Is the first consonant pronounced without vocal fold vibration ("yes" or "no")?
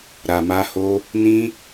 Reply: no